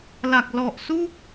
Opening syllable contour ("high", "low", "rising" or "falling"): low